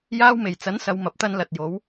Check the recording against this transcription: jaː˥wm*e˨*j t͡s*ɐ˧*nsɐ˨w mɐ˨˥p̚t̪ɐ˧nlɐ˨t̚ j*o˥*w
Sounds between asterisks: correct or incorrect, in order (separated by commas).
incorrect, incorrect, incorrect